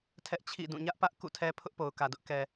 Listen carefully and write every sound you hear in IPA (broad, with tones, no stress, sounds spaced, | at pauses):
tʰ ɛ˦ ʔ t͡ɕʰ ḭ˦˨ d ũ˦˨ ɲ ä˦ ʔ p ä˦ ʔ k ṵ˦˨ tʰ ɛ˦ pʰ ʊ˦ ʔ p o˨ ʊ̯ k ä˨ d ʊ˦ ʔ k ɛ˨